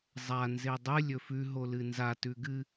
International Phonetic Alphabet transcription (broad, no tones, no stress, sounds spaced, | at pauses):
zˤ a n z e dˤ ɨ lʲ ɵ f ʉ ɦ o l ɨ n z a t ʉ ɡ ɨ